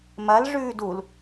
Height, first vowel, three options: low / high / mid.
low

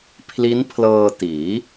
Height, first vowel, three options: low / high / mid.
high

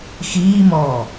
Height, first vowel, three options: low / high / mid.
high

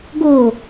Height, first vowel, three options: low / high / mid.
mid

